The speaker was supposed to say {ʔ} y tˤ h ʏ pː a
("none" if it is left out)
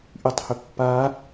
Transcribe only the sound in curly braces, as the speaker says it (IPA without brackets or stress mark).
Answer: ʔ